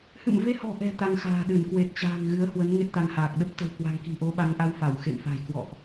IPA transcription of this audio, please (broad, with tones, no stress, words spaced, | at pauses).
hɨ̰˧˨mve˧hɔ̤˨˩ʔɛ̤˨˩ t̪a˧ŋxa̤ː˨˩ɗɨ˧˩n kwe˨˩t̚t͡ɕa̤ː˨˩ŋ ɣɨ˨˦ə̯hwə˨˦n ŋe˦˥t̚t̪a˧ŋhaː˨˩k̚ ɗə˦˥p̚t̪ə̤˨˩wkwa̤˨˩ŋ ki̤˨˩ʔo˨˦ɓa˨˦ŋʔa˧w fa˧˩wxḛ˧˨mfa̤˨˩j kwɔ̰˧˨ʔ